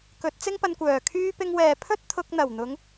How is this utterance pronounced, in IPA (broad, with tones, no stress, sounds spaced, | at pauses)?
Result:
k ɵ˨˥ t̚ t͡s ɪ˥ ŋ p ɐ˧ n kʷ œː˨˩ kʰ yː˧ p ɪ˧ ŋ w ɛː˨ pʰ ɵ˥ t̚ t̪ʰ ʊ˧ k̚ n̪ ɐ˨˩ w n̪ ʊ˨˧ ŋ